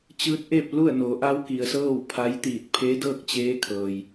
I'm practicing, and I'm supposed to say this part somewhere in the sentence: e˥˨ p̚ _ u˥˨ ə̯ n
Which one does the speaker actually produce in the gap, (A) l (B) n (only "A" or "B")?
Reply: A